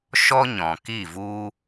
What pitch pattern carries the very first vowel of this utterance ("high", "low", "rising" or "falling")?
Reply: high